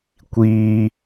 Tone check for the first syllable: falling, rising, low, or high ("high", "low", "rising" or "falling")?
low